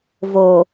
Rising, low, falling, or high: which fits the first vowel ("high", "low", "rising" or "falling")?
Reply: low